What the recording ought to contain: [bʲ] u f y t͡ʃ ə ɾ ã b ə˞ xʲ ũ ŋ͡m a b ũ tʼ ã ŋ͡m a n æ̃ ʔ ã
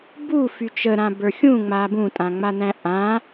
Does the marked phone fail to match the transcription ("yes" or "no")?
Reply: yes